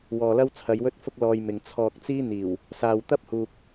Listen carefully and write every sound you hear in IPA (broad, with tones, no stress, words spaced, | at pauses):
wɔː˨lɐ˥wt͡sʰɐ˨˧j wɵ˥t̚fʊ˥k̚lɔː˧j mɪ˨ŋt͡sʰɔː˧k̚t͡siː˥ n̪iː˨˩w | saː˨wt̪ɐ˥p̚huː˨k̚